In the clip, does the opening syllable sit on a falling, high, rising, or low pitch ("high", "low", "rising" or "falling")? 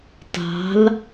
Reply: rising